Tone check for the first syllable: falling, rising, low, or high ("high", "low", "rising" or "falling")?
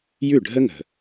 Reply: falling